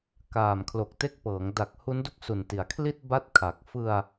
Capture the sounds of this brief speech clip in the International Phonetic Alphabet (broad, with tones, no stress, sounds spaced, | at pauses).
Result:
k aː˨˩ m kʰ l o˨˩ k̚ t e˦˥ k̚ p ɤː˩˦ ŋ d a˨˩ k̚ h u˦˥ n d u˥˩ k̚ s u˨˩ n t i˩˦ a̯ kʰ l i˥˩ t̚ b a˥˩ t̚ kʰ a˨˩ k̚ f ɯ˧ a̯